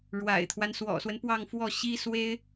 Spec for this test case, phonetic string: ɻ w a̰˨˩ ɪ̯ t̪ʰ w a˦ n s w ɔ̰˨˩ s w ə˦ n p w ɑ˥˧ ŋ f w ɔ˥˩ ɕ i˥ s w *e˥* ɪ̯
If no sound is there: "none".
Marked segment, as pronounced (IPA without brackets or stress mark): e˥